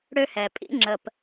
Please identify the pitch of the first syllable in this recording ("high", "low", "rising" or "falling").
high